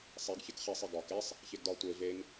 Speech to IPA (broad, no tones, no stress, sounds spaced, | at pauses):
sˤ e ɡ ç e k χ e sˤ i ɡ ɒ k e sˤ | ç e ɡ d ɒ tʷ e v e ŋ